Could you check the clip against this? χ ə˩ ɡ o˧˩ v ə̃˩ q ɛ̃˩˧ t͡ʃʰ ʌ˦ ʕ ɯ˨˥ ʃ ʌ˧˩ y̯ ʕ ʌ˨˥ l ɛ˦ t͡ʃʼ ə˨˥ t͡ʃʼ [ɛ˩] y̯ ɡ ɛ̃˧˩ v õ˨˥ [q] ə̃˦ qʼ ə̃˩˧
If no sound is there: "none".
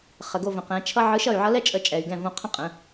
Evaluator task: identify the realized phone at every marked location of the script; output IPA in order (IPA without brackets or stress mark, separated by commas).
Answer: ɛ˩, qʰ